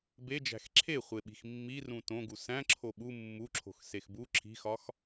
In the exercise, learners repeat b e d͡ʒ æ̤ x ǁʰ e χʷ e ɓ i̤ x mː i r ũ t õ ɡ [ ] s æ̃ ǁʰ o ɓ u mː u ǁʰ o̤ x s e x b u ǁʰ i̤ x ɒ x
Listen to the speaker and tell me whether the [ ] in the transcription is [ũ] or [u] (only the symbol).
u